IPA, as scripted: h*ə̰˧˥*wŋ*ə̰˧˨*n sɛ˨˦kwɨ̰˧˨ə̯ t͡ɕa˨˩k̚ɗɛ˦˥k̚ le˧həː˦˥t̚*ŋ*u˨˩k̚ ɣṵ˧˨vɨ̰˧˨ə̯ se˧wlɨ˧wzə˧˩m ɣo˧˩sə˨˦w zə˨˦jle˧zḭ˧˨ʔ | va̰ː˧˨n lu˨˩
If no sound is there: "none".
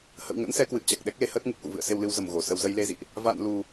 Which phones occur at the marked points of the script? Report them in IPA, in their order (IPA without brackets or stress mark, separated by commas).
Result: ə̰˧˨, ə̰˧˥, ŋ